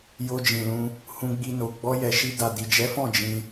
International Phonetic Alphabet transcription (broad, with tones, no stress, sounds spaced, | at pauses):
j o˧ d͡ʒ ĩ˨ l ũ˧ | h ũ˧ ɡ͡b i˧ n o˨ ɡ͡b ɔ˧ j ɛ˨ ʃ i˧ d a˨ d i˨ d͡ʒ ɛ˨˦ f ɔ̃˦˨ d͡ʒ ĩ˧